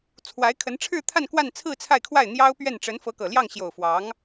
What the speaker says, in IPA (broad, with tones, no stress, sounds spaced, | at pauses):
t͡sʰ w a˧˥ ɪ̯ kʰ ə˧˥ n ʈ͡ʂʰ ɻ̩˥˧ t̪ʰ a˥˧ n k w a˥˧ n t͡sʰ ɹ̩˥˧ t͡sʰ a˥˧ ɪ̯ kʰ w a˥˩ ɪ̯ n̪ j ɑ˥ ʊ̯ p ɥ ɛ˥˩ n ʈ͡ʂ ə˧˥ n f ɤ˧˥ k ɤ˨˩ l j ɑ˥˩ ŋ ɕ j o˨˩ ʊ̯ f w ɑ˧˥ ŋ